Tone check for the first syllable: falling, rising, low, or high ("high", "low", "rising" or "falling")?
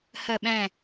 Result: falling